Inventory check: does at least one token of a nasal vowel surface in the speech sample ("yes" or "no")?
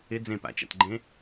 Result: yes